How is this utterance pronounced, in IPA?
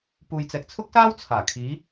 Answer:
p uː˨ j t͡s ɛː˨ k̚ t͡sʰ ʊ˥ k̚ s aː˥ w t͡sʰ aː˨˩ kʰ iː˨˧

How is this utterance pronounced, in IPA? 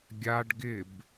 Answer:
ɡʲ a ɖ ɡ ɪ b

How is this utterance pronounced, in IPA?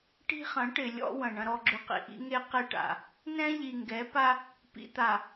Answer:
ʈ i̤˦ χ ɐ̃˨˦ ʈ ɪ˨ lʲ ɔ̰˦ w ɐ̃˨ ɳ ɐ̃˨ ɾ ɔ˨ ɡ͡ǁ ʏ˨ q ḭ˨ ʔ ḭ˦ ŋ e˦ q e˦ ʈ a̰˨ | n ɛ̃˦ ʎ i˨ ŋ ɡ ɛ˨˦ p a˦ | p ḭ˨ t̪ a˨

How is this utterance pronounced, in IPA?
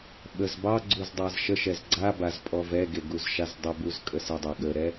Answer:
ɓ ə z b ɑ ɡ͡ǀ u z dˤ a z ʃ ə ʃ ɛ z ɡ͡ǀ a b a z pʼ ɔ v ɛ ɡ e ɡ u z ʃ a z dˤ ə b u z kʼ ə s ə dˤ ɛ ɠ ə ɾ ɛ

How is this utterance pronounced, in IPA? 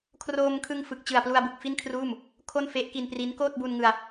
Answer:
kʰ r oː˧ m kʰ ɯ˧ ŋ f ɯ˨˩ k̚ t͡ɕ ɯ˨˩ a̯ p l u˧ a̯ b ɯ˨˩ k̚ f i˥˩ n kʰ r uː˥˩ m | kʰ o˥˩ n f e˦˥ ʔ k i˧ n p r i˦˥ n k oː˥˩ t̚ b u˧ n ŋ ɯ˧ a̯

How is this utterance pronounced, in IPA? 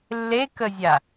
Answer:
lː e k ə zʲ a

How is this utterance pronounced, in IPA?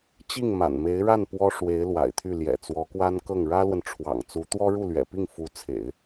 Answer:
t͡ɕ i˥˩ ŋ m a̰˨˩ n m e˧˥ ɪ̯ ɻ a˥˩ n p w ɔ˥ ʂ w e˧˥ ɪ̯ l w a̰˨˩ ɪ̯ t̪ʰ y˥˩ l j ɛ̰˨˩ t͡s w ɔ˧˥ k w a˥ n k ɤ˥˩ ŋ ɻ ä˥ l w ə˨ n ʈ͡ʂʰ w ɑ̰˨˩ ŋ t͡s u˧˥ t̪ w ɔ˥ ɻ u˥˩ l ɥ ɛ̰˨˩ p i˥˩ ŋ f u˧˥ t͡sʰ ḛ˨˩˦ ɪ̯

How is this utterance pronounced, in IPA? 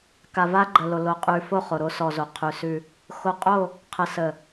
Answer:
k a˨ v a˦ ɡ͡ǃ ə˨ l o˨ l o˨ qʼ ʉ˨ f o˦˨ χ o˨ ɾ o˦ s ɔ˨ z o˨ qʰ ʉ˨ s ʉ˦ | x o˨ qʼ o˦˨ | qʰ ə˨ s ə˨

